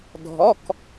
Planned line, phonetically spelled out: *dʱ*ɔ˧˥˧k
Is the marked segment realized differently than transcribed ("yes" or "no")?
no